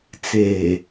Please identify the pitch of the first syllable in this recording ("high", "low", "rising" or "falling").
low